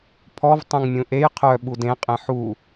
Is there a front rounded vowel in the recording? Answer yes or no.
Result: yes